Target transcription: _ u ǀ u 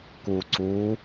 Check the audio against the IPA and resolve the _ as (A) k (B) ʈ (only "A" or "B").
A